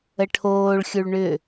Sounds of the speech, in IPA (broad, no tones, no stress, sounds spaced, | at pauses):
ə ʈʰ oː ɭ xʲ u ɭ ɳ ʏ